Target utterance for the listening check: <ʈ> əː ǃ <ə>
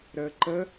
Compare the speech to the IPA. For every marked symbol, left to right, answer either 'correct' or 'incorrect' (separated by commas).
incorrect, correct